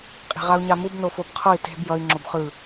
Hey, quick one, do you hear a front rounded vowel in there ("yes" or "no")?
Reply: no